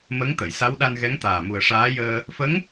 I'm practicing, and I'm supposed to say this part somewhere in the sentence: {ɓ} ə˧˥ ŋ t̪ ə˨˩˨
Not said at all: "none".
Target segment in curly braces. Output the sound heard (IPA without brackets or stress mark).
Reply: m